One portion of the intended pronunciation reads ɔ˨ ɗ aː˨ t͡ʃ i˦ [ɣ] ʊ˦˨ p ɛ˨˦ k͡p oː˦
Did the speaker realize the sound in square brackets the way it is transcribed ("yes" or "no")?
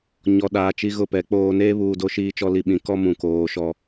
yes